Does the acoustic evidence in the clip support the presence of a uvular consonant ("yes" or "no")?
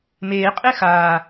yes